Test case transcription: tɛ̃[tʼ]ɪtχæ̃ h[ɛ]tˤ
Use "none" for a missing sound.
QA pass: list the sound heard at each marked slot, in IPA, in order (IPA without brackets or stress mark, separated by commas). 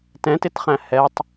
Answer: t, ɛ